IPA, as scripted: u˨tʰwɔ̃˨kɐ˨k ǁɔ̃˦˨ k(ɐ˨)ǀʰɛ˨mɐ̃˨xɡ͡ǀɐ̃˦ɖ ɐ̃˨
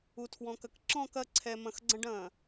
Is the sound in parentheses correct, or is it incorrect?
incorrect